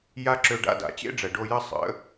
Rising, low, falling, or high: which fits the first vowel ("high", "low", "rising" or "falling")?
high